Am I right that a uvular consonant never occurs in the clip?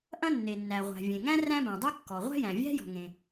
no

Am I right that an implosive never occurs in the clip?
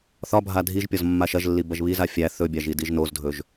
yes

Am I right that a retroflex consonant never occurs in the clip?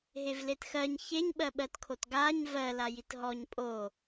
yes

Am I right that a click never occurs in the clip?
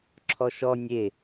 no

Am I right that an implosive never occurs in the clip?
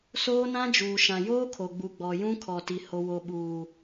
no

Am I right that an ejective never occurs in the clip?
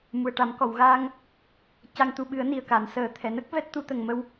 yes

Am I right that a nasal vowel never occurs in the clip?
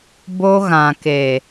no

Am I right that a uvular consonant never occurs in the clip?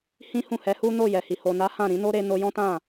yes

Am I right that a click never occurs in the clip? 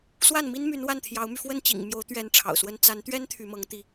yes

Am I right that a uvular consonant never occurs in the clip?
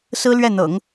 yes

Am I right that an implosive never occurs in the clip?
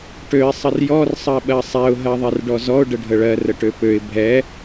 no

